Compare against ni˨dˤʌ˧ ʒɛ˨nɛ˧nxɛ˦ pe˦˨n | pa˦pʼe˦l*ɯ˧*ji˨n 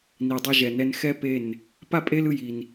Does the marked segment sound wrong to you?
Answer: no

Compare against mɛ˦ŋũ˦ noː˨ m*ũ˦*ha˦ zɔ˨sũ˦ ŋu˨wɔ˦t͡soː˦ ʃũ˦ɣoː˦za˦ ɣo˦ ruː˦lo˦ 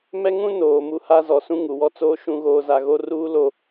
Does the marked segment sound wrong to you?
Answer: yes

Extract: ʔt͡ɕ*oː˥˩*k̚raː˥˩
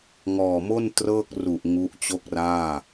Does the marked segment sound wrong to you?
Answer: yes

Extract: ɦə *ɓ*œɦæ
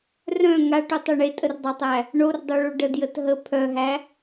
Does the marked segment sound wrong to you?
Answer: yes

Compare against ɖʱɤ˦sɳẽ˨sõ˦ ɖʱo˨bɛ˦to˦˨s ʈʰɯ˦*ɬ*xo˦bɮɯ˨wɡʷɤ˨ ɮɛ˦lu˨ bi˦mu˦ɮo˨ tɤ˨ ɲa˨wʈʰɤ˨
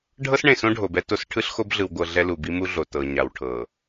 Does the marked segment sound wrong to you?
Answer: no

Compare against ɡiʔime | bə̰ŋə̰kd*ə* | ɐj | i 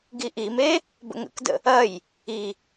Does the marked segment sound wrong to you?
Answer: yes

